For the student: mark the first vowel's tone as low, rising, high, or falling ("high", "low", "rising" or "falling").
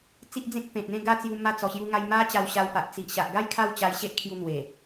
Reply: high